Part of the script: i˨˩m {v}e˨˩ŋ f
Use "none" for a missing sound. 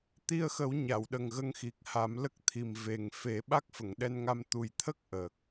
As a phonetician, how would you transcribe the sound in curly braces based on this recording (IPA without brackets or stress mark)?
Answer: v